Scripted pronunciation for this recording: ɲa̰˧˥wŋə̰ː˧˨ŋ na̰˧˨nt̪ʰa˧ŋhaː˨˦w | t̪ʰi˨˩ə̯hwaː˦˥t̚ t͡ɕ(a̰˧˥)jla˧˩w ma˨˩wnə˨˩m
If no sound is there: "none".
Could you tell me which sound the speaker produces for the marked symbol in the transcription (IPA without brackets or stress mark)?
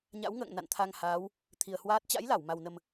a̰˧˥